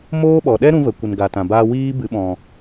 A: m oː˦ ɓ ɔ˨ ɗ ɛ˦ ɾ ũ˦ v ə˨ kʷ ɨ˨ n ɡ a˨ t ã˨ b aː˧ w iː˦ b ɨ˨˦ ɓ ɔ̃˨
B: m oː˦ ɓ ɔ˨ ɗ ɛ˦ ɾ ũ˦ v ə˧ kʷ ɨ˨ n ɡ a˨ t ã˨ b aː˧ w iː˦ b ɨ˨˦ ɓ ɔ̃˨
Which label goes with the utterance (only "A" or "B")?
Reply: A